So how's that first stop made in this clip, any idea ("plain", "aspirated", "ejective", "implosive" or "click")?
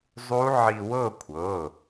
aspirated